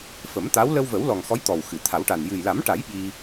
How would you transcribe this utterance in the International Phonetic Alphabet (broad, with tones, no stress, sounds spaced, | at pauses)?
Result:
f ə˨˩˦ m t̪ a˧˥ w l ə˧ w v ə˨˩˦ w l ɔ˨˩ ŋ x ɔ˧˥ j t̪ ɔ˨˩ w x ɨ˨˩˨ t̪ʰ a˨˩˦ w ʈ a˨˩ n j ɨ˨˩ j l a˨˩˦ m ʈ a˨˩˦ j ɓ i˧